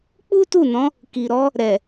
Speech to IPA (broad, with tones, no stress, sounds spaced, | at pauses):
k͡p u˦ t u˦˨ n ɔ̃˨˦ | k i˨ ɾ ɔ˨˦ | ɾ ɛ˨